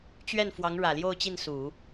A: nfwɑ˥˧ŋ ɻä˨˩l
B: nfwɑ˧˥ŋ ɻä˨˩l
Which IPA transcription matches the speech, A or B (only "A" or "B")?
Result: B